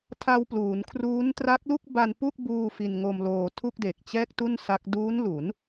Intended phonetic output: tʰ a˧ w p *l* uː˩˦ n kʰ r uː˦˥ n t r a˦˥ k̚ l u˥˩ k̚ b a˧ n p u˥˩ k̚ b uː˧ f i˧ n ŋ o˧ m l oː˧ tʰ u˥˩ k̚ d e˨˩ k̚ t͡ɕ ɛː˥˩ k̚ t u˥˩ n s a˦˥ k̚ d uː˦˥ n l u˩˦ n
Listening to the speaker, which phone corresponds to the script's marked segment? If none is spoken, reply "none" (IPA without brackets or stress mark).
l